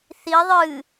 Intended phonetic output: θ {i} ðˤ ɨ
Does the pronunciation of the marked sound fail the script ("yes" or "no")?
no